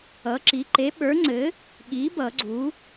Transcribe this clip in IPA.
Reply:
ʌ˩˥ǁi˩˥ ǃe˩˥ɓə˞˩˥ŋ͡ǀɘ˩˥ | ɠi˩˥ bʌ˨˩˦ɡ͡ǀu˩˥

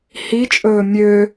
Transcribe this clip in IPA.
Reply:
hit͡ʃʼɵː mʲø

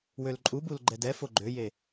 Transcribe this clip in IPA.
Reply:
wølǃʼubul ɡ͡ǃɛdɛfo ɡ͡ǃøje

